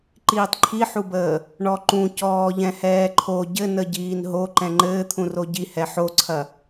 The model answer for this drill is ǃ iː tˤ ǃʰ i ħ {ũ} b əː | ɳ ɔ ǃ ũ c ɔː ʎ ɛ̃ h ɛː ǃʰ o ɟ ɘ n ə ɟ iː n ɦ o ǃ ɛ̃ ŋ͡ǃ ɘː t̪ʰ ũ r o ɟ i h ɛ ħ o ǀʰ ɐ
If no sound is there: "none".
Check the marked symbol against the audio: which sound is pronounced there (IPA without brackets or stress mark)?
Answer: u